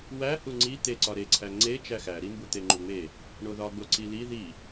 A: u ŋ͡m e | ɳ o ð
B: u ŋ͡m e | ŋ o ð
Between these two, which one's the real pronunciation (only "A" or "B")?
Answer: A